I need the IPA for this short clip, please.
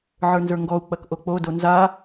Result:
ʕ ə˞ n z ə˞ ŋ ɡ ɔ u̯ k͡p ɐ k ʔ o k͡p o d o n z a

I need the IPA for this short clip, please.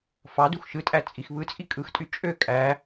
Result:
f ɑ d u x ʃ ɯ tʼ æ t͡sʼ i x β ɯ t͡sʼ i kʼ ɯ x tʼ y t͡ʃʼ ø kʼ æ

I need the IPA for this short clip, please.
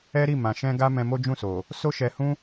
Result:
ɛ˦ ɾ i˦˨ m ã˨ ʃ ɛ̃˧ ɡ a˦ m ɛ̃˧ m o˦ d͡ʒ ũ˦˨ s o˨ | s o˦ ʃ ɛ˧ h ũ˦

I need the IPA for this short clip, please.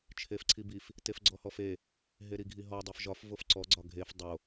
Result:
t͡ʃʰ e f ǀʰ i b i f | t e f ɡ͡ǀ ɔ h ɔ f e | ɦ e ɾ i ɡʱ i ɦ ɔ dˤ i f ʒ ɒ f v o f ǀ ɔ ɡ͡ǀ ɒ ɡʱ e f dˤ o

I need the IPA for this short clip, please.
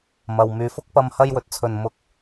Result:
m ɐ˨ w m yː˨˧ f ʊ˥ k̚ p ɐ˧ m h ɐ˧ j w ɵ˨ t̚ t͡sʰ ɵ˨ n m ʊ˧ k̚

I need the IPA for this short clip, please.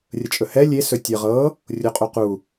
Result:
rʲ ə t͡ʃʼ ɵ h ɛ lʲ e s ɵ tʲ ə ʁ ɤ | rʲ o qʼ u q u

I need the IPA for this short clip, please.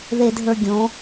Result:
ð e˨ dʱ ə˞˨ ɡʲ õ˨˦

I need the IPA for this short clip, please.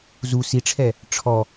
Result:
z u s i ʈ͡ʂʰ ɛ | ʈ͡ʂʰ ɔ

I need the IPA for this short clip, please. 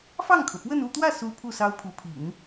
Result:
f ɑ˥˩ ŋ kʰ ɤ˩ p w ə˥˧ n u˥˧ t̪ w ä˥˩ s u˥ pʰ u˥˩ s ɑ˥ ʊ̯ pʰ u˧˥ pʰ ḭ˨˩˦ n

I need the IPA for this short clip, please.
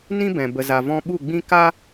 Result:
n ĩ˦ b ɛ̃˨ b ə˨ z a˨ v ɔ̃˧ ɓ u˦˨ ɡ͡b ĩ˦ k a˦

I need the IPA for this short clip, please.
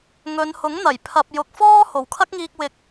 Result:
ŋ ɵ˨˧ n h ʊ˨˥ ŋ n̪ ɐ˨˩ j pʰ ɐ˨ p̚ j ʊ˨ k̚ f ɔː˥ h o˨˩ w kʰ ɐ˥ k̚ ŋ iː˧ k̚ w ɪ˧ k̚

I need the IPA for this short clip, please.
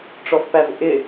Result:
ʈ͡ʂ ɔ f p æ v ʔ ɪ

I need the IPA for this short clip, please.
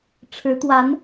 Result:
ʈ͡ʂʰ ɻ̩˧˥ t̪ w a˧˥ n

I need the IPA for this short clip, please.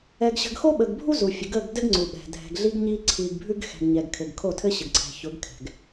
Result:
ɛ˨ ɡ ɕ ə̤˨ ɡ x o˦ ɓ ə˨ ɡ bʱ u˦ z u˨ fʲ ʊ˨ ɡ ə˦˨ ɡ d ɘ˦ ɡ ŋ͡ǀ u˨ ɓ ɛ̤˨ dʱ ɛ̤˨ ɡ ɮ i˦ ɡ ɲ i˦ ǀʰ i˨ ɡ bʱ ʉ˦ ɡ x ɛ̤˨ ɡ ɲ ɛ˨ ɡ kʰ ɘ˨ ɡ kʰ o˦˨ tʰ ɘ˦ ɕ ɘ˨ ɡ ǀʰ ɛ̤˨ ç ʊ˨˦ ɡ kʰ ɛ̤˨ ɡ

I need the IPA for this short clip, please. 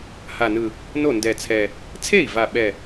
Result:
h a˨˩ n ɯ˨˩ | n o˥˩ n d ɛ˨˩ t͡sʰ ɛ˨˩ | t͡sʰ e˥˩ i̯ v a˨˩ ɓ ɛ˨˩

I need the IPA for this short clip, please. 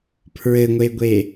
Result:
pʰ ɹ ɘ ŋʷ e ɡʷ e

